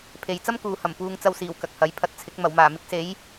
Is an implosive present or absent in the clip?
absent